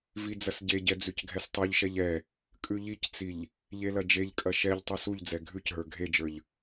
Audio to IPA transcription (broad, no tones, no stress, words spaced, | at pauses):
vid͡zɐsɟeɟɛ d͡zʉcɡʱɛstˤʉʎʃɛʎ ɛ | kʼʉʎict͡siʎ | ʎelɐd͡ʒeʎkʼɐ ʃɛʎtˤɛs uʎd͡zɛ ɡʱʉcɦə˞ ɡʱed͡ʒə˞ʎ